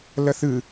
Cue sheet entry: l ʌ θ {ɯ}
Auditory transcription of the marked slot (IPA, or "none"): ɯ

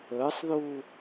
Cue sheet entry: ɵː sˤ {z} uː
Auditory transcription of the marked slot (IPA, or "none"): ð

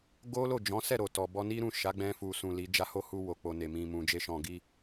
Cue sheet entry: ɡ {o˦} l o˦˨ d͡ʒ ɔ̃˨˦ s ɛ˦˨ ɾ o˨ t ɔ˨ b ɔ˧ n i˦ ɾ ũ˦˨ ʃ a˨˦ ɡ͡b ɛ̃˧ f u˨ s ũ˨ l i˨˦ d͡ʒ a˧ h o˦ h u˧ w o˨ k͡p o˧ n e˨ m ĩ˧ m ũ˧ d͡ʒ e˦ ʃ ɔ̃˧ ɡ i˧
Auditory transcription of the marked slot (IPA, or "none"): o˦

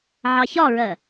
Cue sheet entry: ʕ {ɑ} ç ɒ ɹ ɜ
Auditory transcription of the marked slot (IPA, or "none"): ɑ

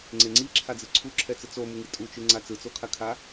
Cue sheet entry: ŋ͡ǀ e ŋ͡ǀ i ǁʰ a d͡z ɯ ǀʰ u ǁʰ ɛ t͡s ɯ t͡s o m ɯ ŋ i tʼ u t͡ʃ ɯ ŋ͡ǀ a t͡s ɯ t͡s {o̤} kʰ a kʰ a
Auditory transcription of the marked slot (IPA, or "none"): o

